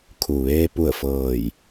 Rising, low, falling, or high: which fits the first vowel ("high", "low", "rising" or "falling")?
low